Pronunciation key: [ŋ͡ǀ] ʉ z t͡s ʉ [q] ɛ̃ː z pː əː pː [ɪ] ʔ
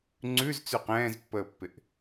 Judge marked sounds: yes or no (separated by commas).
yes, yes, yes